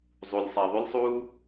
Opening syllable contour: low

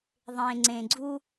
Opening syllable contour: low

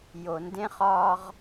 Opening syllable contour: low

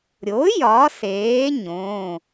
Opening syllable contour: rising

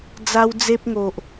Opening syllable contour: high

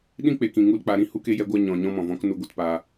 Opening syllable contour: high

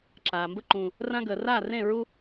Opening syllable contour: low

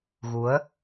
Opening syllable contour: rising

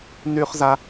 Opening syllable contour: high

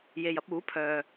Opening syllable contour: low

